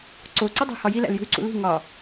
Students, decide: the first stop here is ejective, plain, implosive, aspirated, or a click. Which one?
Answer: click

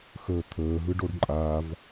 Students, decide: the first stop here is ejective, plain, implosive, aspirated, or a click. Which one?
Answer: aspirated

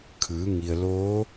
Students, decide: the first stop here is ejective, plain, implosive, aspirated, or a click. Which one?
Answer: aspirated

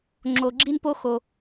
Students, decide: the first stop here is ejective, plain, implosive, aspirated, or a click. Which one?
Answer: click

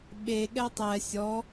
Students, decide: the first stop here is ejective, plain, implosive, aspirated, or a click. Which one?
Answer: implosive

